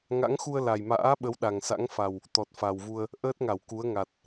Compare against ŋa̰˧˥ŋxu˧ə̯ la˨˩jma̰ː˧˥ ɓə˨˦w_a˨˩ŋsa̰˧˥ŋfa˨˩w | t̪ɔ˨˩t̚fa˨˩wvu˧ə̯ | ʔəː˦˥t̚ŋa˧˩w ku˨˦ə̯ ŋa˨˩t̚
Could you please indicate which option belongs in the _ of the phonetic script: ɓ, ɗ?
ɗ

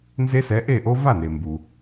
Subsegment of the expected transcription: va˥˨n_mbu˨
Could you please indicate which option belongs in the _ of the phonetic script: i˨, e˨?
e˨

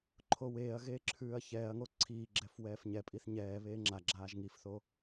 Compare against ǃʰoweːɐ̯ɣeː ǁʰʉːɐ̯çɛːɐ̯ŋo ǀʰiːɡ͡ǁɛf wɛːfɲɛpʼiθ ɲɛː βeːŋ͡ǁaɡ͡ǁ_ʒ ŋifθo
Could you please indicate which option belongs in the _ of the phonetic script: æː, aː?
aː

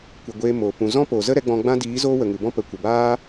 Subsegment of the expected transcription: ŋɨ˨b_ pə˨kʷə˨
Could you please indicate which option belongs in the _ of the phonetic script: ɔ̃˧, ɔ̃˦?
ɔ̃˦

